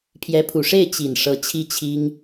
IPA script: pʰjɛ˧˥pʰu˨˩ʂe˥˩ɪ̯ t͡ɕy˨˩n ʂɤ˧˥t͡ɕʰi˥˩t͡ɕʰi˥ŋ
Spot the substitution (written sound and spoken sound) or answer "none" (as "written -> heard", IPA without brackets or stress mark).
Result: y˨˩ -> i˨˩